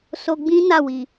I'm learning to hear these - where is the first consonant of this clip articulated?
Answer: tongue tip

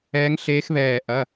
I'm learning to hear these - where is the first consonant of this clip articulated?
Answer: velum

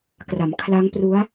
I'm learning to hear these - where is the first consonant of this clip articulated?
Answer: velum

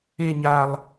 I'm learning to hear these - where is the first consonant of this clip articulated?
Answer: palate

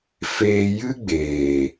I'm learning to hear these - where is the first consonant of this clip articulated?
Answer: lips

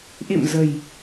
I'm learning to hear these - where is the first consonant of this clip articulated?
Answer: throat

